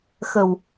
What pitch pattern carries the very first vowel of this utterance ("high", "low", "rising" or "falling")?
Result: low